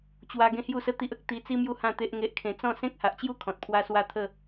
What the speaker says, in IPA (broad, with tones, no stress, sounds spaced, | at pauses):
t͡ɕ w a˧ ɡ ẽ˦ h j u˥˧ s ə˦ t̪ i˦ ʔ ə˦ k̚ t̪ i˧ t͡s i˦ m j u˦ h ã˥˧ t̪ e˦ ʔ ŋ e˦ ʔ kʰ ẽ˧ t͡s ɔ̃˥˧ s ẽ˦ k̚ h a˨ ʔ t͡ɕ j u˦ kʰ ɔ̃˨ t̚ pʰ w a˦ s w a˥˧ t̪ʰ ə˥˧